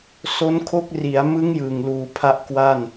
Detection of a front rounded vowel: absent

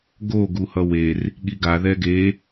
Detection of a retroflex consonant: absent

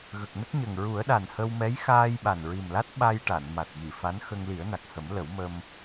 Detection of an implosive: present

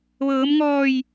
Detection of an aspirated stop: absent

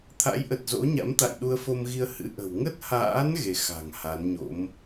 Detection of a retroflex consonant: absent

